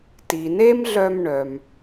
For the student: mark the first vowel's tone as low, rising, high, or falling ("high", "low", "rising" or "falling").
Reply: low